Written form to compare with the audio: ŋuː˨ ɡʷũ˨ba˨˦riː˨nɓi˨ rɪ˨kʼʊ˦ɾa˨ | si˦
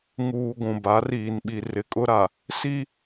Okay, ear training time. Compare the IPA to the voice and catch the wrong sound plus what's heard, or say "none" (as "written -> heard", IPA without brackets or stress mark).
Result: none